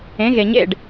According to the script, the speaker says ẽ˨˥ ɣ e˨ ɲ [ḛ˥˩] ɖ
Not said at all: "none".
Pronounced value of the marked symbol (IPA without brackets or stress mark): ḛ˥˩